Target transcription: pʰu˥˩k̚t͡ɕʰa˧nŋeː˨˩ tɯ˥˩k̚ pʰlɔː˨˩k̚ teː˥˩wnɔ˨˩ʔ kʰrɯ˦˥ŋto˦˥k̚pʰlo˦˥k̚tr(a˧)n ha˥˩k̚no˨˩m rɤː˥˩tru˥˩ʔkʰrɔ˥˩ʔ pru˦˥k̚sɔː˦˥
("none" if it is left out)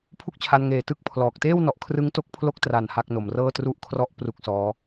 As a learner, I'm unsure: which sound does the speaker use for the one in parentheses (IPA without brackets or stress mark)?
a˨˩